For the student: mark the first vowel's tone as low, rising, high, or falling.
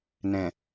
low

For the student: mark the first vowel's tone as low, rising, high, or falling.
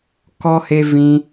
high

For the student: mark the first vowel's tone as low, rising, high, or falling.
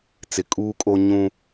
low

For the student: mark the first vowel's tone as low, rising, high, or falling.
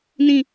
falling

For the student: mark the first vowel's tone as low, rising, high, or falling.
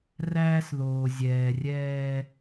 high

